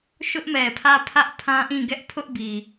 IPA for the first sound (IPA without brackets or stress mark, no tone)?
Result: ʃ